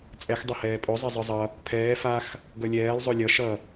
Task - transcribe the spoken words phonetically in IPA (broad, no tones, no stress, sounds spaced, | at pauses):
t͡sʼ ɛ x dˤ ʌ h ɛː pʼ o zˤ ʌ zˤ ɯ zˤ ʌ | pʰ ɛː f a x | ɡ ʌ lʲ ɛː lˠ zˤ o lʲ ʌ ʃ ʌ